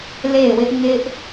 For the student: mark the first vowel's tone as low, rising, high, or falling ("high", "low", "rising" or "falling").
falling